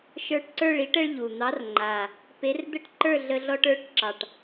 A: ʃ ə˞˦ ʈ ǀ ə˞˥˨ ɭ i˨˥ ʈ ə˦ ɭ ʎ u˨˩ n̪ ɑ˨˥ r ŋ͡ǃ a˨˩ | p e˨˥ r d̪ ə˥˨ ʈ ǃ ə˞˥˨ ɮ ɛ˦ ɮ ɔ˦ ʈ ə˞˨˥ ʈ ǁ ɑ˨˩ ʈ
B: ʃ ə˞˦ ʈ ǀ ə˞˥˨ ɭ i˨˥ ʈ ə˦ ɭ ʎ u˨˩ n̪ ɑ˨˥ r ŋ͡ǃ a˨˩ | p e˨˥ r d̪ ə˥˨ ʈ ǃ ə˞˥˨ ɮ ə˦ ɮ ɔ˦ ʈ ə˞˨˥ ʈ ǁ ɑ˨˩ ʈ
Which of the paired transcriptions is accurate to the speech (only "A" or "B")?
B